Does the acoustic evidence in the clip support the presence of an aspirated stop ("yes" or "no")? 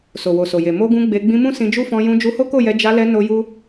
no